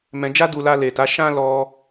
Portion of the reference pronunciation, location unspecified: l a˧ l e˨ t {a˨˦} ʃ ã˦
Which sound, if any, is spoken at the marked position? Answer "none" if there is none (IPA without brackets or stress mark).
a˨˦